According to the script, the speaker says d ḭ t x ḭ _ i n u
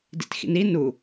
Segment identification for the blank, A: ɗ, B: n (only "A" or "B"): B